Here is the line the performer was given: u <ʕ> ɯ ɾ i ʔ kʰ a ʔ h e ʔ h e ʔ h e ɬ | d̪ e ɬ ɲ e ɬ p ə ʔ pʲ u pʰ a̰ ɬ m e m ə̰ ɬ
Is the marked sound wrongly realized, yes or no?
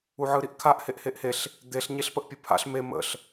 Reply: no